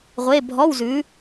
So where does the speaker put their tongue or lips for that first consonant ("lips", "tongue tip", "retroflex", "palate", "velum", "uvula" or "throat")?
uvula